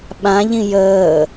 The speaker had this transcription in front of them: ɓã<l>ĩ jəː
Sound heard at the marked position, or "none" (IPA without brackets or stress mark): ʎ